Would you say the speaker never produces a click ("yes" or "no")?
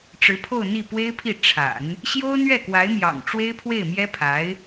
yes